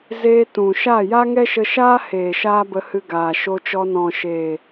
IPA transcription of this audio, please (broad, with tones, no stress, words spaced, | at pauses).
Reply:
zeː˧ tũ˨ ʃa˦˨ja˦ ŋɛ˦ʃə˧ʃaː˦heː˨ ʃaː˦bə˧hɨ˧ ɡaː˨ʃo˧t͡ʃɔ˧ nɔ̃˨ʃeː˨